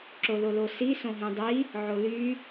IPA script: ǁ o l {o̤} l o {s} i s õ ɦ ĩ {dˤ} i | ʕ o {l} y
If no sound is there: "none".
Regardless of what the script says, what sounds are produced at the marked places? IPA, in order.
o, s, dˤ, l

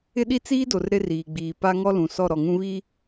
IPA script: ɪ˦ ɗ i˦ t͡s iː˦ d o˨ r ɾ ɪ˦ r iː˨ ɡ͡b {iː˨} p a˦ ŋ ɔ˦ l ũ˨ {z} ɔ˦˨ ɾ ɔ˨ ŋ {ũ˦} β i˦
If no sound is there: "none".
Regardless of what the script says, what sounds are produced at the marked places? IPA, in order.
iː˨, s, ũ˦

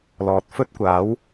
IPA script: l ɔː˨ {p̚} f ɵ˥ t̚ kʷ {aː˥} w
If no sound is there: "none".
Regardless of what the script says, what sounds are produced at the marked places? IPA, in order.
t̚, aː˨˥

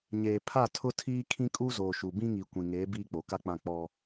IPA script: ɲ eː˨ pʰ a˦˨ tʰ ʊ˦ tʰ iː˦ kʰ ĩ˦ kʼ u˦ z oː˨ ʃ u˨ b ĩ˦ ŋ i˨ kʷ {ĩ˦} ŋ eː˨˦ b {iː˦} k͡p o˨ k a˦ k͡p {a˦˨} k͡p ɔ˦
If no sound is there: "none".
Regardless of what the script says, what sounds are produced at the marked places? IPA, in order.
ĩ˨, iː˦, ã˦˨

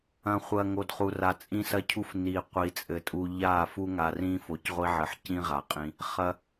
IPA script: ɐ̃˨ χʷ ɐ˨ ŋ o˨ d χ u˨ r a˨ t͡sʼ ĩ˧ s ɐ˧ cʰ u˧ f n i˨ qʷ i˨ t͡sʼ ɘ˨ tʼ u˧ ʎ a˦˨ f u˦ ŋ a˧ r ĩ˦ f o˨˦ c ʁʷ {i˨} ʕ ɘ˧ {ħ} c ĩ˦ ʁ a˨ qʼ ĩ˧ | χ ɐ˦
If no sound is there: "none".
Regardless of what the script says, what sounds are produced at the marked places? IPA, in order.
i˦, ħ

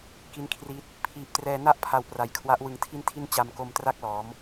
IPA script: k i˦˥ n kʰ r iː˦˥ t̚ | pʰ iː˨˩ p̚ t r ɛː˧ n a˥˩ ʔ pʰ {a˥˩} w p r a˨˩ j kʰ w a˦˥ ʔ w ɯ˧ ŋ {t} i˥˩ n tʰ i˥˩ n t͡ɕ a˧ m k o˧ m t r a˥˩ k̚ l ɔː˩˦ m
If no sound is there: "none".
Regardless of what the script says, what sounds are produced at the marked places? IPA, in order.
a˧, tʰ

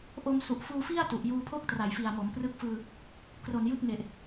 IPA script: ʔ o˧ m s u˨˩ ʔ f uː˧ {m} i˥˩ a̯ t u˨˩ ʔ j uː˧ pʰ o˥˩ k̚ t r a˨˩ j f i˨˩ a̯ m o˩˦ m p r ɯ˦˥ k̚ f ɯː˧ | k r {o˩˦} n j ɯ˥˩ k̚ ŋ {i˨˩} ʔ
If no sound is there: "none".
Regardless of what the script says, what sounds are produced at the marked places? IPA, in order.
f, o˨˩, e˨˩

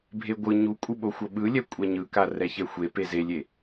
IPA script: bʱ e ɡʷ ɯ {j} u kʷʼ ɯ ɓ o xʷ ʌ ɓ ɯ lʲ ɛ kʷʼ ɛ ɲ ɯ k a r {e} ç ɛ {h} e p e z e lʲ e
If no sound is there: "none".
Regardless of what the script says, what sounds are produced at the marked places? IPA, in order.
ɲ, ɛ, xʷ

